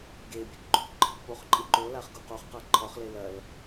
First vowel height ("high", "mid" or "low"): mid